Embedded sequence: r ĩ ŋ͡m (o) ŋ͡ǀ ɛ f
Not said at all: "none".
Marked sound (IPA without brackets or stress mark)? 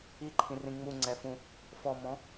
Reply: u